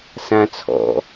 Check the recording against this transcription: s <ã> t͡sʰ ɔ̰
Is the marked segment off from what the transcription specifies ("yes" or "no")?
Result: no